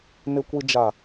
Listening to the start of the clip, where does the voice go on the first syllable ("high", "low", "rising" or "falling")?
low